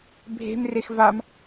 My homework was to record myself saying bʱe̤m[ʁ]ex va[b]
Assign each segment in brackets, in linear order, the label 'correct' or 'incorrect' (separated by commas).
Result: incorrect, incorrect